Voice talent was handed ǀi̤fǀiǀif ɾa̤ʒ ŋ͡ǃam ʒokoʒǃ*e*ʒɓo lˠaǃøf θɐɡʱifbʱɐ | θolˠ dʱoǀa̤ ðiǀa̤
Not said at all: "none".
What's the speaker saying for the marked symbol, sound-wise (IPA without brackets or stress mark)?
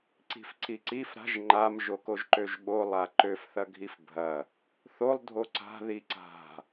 ø